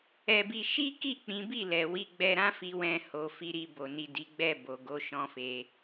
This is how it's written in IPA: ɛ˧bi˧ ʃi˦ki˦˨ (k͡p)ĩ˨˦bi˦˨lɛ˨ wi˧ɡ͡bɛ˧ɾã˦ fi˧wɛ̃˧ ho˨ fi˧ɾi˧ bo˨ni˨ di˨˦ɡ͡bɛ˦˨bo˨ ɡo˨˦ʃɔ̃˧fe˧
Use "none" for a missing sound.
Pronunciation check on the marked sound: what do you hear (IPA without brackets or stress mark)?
k͡p